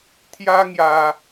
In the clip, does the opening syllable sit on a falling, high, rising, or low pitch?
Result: high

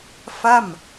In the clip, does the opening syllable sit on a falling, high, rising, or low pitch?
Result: falling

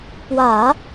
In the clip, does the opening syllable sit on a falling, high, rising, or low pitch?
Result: low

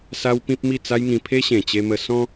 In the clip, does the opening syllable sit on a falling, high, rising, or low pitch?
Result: high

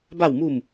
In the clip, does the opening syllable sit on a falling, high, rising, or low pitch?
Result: falling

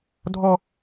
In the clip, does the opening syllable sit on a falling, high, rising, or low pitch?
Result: high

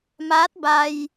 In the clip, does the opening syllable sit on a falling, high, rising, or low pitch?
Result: rising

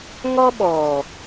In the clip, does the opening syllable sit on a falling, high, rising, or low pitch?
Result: high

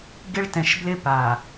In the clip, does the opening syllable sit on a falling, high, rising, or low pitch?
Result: high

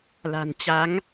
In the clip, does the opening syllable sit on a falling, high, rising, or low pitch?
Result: low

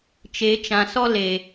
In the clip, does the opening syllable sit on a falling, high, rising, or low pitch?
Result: rising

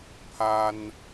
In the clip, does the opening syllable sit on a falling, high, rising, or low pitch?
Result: high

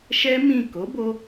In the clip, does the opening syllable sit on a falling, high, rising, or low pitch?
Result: high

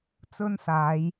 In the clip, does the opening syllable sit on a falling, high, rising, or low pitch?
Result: high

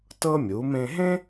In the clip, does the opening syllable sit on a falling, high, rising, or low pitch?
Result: high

